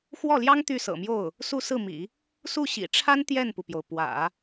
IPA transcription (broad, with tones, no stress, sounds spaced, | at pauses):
x w ɔ˥˩ l j ɑ˥ ŋ t̪ y˥˩ s ɤ̰˨˩ m j o˥˩ ʊ̯ | s u˥˧ s ɹ̩˥˩ m ḭ˨˩˦ | s u˥˩ ɕ ḭ˨˩ ʈ͡ʂʰ a˥ n t̪ j ɛ˥˩ n p u˩ p j o˩ ʊ̯ p w ä̰˨˩˦